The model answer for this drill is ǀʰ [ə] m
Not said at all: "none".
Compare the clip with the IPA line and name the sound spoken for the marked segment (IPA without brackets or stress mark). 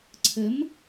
ə